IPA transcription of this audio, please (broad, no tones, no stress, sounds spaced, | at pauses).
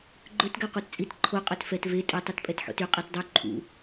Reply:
ɡ͡ǃ ɵ t ɡ æ qʷ ɑ t t͡sʼ i t ǃʰ o qʼ œ t f ɛ t v e tʼ ɵ tˤ u t pʼ ɛ t ħ o̰ t y qʼ ɛ t dˤ y ǃʰ ṵ